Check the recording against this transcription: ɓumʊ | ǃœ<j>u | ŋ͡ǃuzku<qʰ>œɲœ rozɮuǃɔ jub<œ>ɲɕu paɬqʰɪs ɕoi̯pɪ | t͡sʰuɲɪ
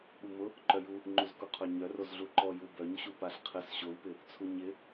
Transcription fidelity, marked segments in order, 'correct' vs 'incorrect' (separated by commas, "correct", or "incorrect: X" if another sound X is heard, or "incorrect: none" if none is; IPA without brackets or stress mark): correct, correct, correct